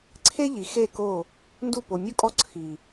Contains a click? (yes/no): yes